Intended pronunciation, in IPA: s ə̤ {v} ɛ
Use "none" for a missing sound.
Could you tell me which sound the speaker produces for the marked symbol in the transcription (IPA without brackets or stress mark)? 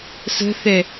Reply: θ